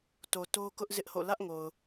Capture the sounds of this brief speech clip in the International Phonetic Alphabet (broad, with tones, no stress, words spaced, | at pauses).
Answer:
to˨to˦kʊ˦ʔ zɪ˦ʔho̰˦˨ lä˦ʔŋo˨ʊ̯